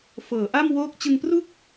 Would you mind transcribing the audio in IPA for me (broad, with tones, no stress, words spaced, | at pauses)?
fɤː˩˦ʔa˥˩m woː˥˩k̚ t͡ɕɯ˧ŋpru˥˩k̚